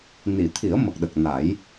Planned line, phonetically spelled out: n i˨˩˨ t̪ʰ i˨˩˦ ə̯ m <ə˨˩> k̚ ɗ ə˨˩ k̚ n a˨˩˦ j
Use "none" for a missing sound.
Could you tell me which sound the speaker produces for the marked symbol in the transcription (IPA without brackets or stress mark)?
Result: ə˨˩